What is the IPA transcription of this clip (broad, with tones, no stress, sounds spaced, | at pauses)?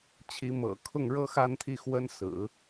t͡ɕʰ i˧˥ m ɤ̰˨˩ kʰ ʊ˥˩ ŋ ɻ ɤ˥ x a˥˧ n t̪ʰ i˥˩ x w ə˥ n s ɹ̩˨˩˦